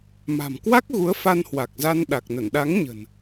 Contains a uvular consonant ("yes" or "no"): no